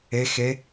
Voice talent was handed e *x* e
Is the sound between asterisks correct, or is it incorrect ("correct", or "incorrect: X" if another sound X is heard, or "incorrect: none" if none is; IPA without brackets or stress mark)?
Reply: correct